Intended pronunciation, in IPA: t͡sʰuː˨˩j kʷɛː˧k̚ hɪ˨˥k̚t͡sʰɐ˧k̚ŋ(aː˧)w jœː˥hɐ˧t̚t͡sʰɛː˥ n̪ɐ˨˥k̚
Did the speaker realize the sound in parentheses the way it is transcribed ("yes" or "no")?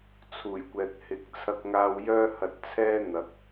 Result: yes